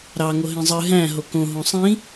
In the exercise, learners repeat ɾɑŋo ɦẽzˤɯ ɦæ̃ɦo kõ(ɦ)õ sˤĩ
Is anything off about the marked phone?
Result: no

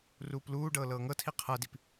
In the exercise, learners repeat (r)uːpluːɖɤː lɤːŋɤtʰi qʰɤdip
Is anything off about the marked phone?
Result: no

